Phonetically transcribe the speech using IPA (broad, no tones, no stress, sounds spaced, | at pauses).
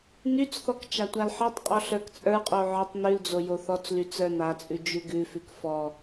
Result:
n y t͡s θ ɔ k t͡ʃ a tʷ a l ħ ɔ tˤ qʼ ɔ ɬ ə˞ k t͡sʼ ə˞ qʼ o ʕ ɔ tˤ n ʉ l d͡z o j o θ ɔ t͡s l y t͡s ə˞ n a t͡sʼ ʉ d͡ʒ ʉ ɡ ʉ f ʉ k f ɔ